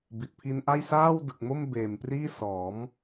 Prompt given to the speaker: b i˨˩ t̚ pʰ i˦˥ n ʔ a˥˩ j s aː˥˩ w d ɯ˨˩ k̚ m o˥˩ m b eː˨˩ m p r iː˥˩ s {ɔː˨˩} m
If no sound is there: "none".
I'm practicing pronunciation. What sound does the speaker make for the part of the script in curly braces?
ɔː˩˦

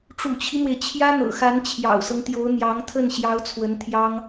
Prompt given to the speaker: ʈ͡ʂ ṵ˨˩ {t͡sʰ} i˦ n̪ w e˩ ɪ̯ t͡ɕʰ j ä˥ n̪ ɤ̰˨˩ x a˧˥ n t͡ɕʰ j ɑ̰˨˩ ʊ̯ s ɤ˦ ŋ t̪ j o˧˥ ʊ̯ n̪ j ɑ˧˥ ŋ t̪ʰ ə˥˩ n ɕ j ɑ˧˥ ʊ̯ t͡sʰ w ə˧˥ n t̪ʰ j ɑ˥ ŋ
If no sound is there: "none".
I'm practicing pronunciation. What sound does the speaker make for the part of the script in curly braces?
t͡ɕʰ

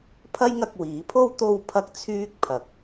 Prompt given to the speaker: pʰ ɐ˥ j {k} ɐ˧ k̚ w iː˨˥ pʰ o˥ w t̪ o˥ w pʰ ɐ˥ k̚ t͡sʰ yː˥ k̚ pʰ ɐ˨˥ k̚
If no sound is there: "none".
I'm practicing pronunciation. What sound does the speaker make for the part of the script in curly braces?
ŋ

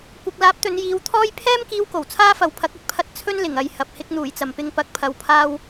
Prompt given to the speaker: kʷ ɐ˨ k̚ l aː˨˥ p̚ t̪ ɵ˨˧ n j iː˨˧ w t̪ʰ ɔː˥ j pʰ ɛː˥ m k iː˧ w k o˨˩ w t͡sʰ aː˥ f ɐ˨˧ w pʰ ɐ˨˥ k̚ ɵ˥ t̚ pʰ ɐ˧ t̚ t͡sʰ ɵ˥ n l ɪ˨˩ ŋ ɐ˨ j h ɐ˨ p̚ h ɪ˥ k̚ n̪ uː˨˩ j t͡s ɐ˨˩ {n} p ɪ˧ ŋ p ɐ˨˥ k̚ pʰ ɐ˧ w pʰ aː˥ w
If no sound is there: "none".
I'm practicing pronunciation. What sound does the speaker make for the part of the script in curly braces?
m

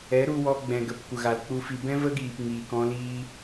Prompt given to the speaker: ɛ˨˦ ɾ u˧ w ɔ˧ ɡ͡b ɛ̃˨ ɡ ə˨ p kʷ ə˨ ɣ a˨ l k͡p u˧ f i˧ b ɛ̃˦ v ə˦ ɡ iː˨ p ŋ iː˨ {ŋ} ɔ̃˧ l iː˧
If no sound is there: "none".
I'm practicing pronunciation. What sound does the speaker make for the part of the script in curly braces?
k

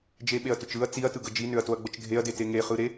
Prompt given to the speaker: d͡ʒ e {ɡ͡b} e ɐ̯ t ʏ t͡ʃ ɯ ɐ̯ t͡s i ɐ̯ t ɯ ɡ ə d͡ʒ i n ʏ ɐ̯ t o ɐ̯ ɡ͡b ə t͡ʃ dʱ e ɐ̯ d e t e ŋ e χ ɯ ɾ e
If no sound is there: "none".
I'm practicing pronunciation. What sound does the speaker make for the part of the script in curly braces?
ɓ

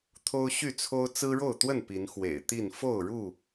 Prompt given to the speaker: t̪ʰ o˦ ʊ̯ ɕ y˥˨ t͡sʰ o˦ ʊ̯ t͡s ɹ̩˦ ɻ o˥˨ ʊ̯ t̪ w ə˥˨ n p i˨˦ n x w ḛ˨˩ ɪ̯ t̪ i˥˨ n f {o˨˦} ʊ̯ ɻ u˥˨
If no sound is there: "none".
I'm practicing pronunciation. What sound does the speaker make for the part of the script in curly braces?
o˥˨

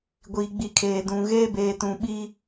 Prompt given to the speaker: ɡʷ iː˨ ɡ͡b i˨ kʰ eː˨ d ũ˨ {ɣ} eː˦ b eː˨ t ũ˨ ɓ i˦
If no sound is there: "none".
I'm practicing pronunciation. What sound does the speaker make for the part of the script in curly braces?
ɣ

